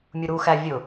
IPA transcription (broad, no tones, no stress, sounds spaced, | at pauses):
mʲ u ɾ u x æ vʲ ʊ